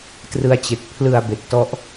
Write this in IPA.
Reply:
t r ɯ˧ a̯ t͡ɕ e˨˩ k̚ pʰ l ɯ˧ a̯ b e˨˩ k̚ t ɔ˦˥ ʔ

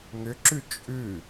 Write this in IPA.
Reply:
ŋ ʏ ǁ ʉ t͡ʃʼ ʉ

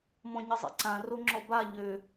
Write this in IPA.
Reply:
m ɔ̃ ɲ ə zˤ ḭ ǀ ã r o ŋ͡ǁ ɔ b a ʎ ø

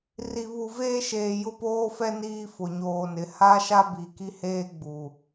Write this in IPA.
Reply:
r i˨ β u˨ v eː˦ ʃ eː˨ j ʊ˦ p oː˦ f ɛ˦ n iː˦ f ʊ˨ ɲ oː˨ n ɪ˨˦ h a˦ ʃ a˦ b i˨ k i˦ h eː˦ ɡ͡b u˨

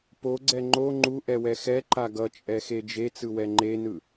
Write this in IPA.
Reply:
p o ɡ͡ǀ ɛ ŋ͡ǃ o ŋ͡ǃ u ʔ ɛ w ɛ x ɛ ǃ a ɡ ʌ t͡ʃʼ ɛ x e d͡ʒ e t͡s ɯ w ɛ ŋ͡ǃ e n ɯ

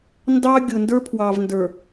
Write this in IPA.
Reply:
n d ɑ˦ ɡʲ ʊ˨ n d ə˞˦ pʰ w ɑ˨ v n d ə˞˨

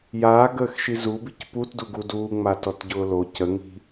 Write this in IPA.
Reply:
j aː ɡ əː x ʃ i z u b i c p u t d u ɡ u d uː ŋ͡m a t ɔ t ɟ ʊː l o c ə ŋ i̤

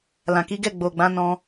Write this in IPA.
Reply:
l ã˨ k i˨˦ ɡ ɛ˦˨ ɡ͡b o˨ ɡ͡b ã˨˦ n ɔ̃˧

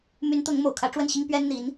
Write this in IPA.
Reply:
m y˧˥ n t̪ ʊ˧˥ ŋ m o˨˩ ʊ̯ kʰ ä˧˥ ʈ͡ʂ w ə˥˩ n ɕ i˥ ŋ p ɥ ɛ˥ n n̪ i˧˥ n

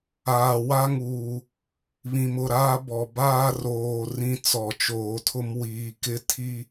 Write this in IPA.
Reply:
aː˨ w a˦ ŋ uː˨ | β ĩ˨ m ʊ˦˨ ɾ aː˦ b ɔ˨ b aː˦ r oː˨ r ĩ˦ t͡s ɔ˨ t͡ʃ oː˨ tʰ ʊ˦ m w iː˨ k ɪ˦ tʰ i˦

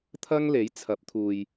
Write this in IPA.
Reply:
t̪ʰ ɐ˥ ŋ l e˨˥ j t͡sʰ ɐ˨˥ p̚ t̪ʰ uː˨ j

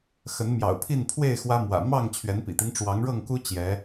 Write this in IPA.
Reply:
x ə˨˦ n m j ɑ̰˨˩ ʊ̯ pʰ i˥˨ n pʰ w e˥˨ ɪ̯ x w ä˦ m w ä̰˨˩ m ɑ˥˨ ŋ t͡ɕʰ ɥ ɛ˨˦ n p ḭ˨˩ t̪ i˦ ŋ ʈ͡ʂ w ɑ˨˦ ŋ ɻ ɤ˥˨ ŋ k u˦ t͡ɕ j ɛ˨˦

